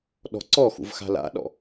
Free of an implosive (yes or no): no